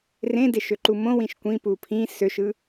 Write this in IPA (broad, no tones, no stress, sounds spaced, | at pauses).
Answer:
r ẽ d e ʃ ø ǃ u m õ w ĩ ʃ kʷ ĩ p u pʰ ĩ s ø ʃ ɯ